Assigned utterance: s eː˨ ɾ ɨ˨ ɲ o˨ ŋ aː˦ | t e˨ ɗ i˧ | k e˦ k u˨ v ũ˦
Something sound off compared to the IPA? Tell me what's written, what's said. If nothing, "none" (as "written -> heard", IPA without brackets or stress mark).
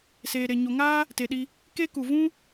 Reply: ɨ˨ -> e˨